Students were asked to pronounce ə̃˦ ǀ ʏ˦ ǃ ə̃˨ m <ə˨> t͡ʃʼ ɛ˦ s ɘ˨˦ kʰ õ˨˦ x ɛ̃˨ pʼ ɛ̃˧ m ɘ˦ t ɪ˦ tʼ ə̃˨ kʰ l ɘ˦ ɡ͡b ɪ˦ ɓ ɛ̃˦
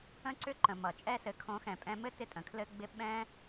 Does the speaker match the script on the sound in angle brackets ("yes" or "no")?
no